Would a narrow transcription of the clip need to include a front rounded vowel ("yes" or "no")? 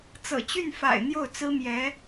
yes